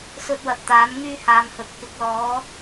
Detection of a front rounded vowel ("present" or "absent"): present